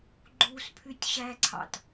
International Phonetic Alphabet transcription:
ɡ͡ǃuspʰytʲ ɕæǀʰɑ̰t

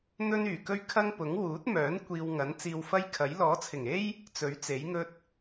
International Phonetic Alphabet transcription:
n̪ɵ˥nyː˨˩kɵ˥ɥ kʰɐ˥ŋpʊ˨˥ŋ wuː˨˥t̚mœː˨˥n kʷiː˧wŋɐ˨˥n t͡siː˧wfɐ˥jkʰɐ˨˥j lɔː˨˥t͡sʰɪ˨˩ŋe˥j | t͡sɵ˨˥ɥt͡se˨˥jŋɵ˥t̚

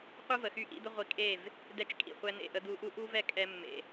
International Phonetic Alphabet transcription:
qʷɯ˦ və˨xy˦ʔḭ˦d̪ə˦ ʁʷi˧kʼe˦˨v | dɛ˦t͡ʃkʼḭ˨χʷɛ˦ n̪ḛ˦˨ʔə˦ d̪u˧ʔu˦ʔu˦ vɛ˦kʼɛ˧mːḛ˨

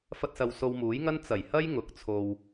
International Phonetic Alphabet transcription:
fɐ˧t̚sɐ˨w so˧wmuː˨˥jŋɐ˥n t͡sɐ˨˩jhɐ˥j ŋʊ˨˥k̚t͡sʰo˧w

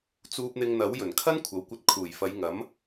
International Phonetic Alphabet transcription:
t͡suː˧p̚n̪ɪ˧ŋn̪ɐ˨˥w jɵ˨˩nkʰɐ˥n kʷʰɐ˨wkʷɐ˧t̚kʰuː˨˩j fɐ˨˧jŋɐ˨˥m

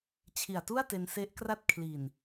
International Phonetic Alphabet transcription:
t͡ɕʰi˨˩a̯tu˥˩a̯ te˧nse˦˥ʔkra˥˩t̚ kʰli˨˩n

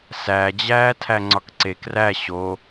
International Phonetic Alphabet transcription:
sæd͡ʑæː tʰæŋ͡ǀɒkǀek ræ ɕo

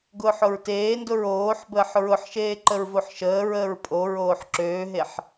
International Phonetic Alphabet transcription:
ɡʊːħʊɹteːndʊɹ oːħbəːħ ɹʊħʃeː ǃəɹvoħʃəːɹəːɹ pʼoɹoːħ ǁøːɦeħ

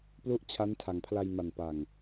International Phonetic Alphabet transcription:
plu˥˩ʔt͡ɕʰa˦˥ntʰa˨˩ŋpʰla˧j ma˨˩npa˨˩ŋ

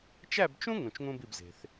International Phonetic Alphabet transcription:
t͡ʃæ˥˧bt͡ʃũ˥ ŋũ˧t͡ʃŋũ˥bi˥˧b ze̤˧θ

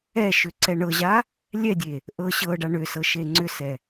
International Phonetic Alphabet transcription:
ɛʃʏ ǀɛɳɤʑa | lʲɛdʲe | ʔɤ ɕɤɖa ɳʏ sɤʃeŋ͡ǀʏsɛ

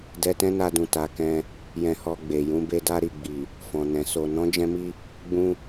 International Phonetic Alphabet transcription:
dɛ˧tɛ̃˦na˧dũ˨ ta˨˦kɛ̃˧ | jɛ̃˧hɔ˧ ɡ͡be˨jũ˨˦be˦ da˦ɾi˦˨ ɡ͡bi˨ | fɔ̃˨nɛ̃˨ so˨nɔ̃˨˦d͡ʒɛ̃˧mi˧ | ɡ͡bũ˧

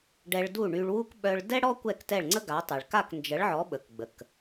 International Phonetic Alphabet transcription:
ɖɛ˧ɭdu˥˩ɳy˧ɭwu˥k ɓœ˧ɭ dɛ˥ɽɔ˥ kʷɛ˥˩ktɛ˥˩ɭŋ͡ǀə˥ɡa˩˥ tˤɛ˩ɭka˥˩k nd͡ʒə˩˥ɭʕɔ˩˥ ɓə˩kɡ͡bə˩k

